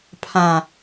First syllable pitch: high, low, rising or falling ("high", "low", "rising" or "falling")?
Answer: low